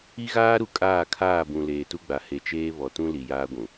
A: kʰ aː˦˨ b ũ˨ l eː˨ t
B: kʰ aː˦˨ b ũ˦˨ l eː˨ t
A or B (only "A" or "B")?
A